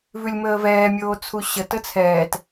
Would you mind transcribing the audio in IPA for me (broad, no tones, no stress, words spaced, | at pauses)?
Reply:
vʉlʲməːvɛːmʲoː t͡sʰuɕə tət͡sʰɛːt